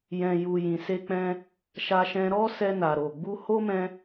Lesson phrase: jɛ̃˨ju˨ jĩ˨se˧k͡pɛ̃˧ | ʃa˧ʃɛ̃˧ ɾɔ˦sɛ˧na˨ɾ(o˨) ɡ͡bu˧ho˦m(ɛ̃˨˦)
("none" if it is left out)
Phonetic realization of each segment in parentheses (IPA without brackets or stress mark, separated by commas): o˨, ɛ̃˧